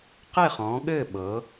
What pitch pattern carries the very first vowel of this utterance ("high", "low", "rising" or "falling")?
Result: falling